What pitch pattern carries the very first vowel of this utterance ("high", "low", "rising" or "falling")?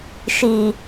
low